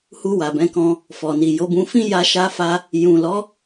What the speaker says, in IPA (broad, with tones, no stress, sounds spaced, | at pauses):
h u˧ w a˨ b ɛ̃˨˦ k ɔ̃˧ | f ɔ˨ n i˨ j o˨˦ b ũ˧ f ĩ˦ j a˧ ʃ a˧ f a˧ | j ũ˨ l ɔ˨˦